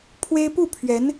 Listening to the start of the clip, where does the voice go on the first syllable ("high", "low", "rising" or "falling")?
high